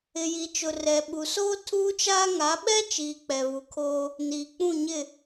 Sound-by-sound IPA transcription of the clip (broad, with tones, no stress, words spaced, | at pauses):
ɪ˨ji˨ t͡ʃʊ˨rɛ˨ ɓu˨soː˦ tʰuː˦t͡ʃaː˦ ŋa˨˦ɓɛ˦t͡ʃiː˨ k͡pɛ˨βu˨kʰoː˦ | niː˨k͡pũ˦˨ɲɪ˦˨